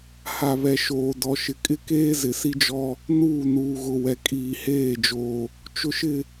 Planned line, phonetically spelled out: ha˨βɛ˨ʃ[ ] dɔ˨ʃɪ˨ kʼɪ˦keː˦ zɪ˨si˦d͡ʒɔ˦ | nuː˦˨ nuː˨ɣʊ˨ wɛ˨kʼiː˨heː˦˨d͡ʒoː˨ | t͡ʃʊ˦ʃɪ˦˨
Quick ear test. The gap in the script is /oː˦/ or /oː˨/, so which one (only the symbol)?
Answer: oː˨